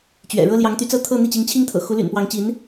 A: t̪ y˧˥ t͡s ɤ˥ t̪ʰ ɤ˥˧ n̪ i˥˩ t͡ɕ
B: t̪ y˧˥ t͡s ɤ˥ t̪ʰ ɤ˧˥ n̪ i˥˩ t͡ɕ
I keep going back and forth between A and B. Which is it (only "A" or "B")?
A